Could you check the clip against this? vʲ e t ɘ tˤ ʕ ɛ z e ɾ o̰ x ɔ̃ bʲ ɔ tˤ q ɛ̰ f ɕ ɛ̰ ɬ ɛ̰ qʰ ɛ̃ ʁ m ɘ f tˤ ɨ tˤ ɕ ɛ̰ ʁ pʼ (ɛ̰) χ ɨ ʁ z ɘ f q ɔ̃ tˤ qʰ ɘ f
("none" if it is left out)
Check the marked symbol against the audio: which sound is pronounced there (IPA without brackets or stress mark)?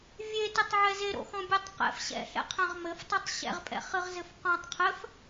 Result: ɛ̰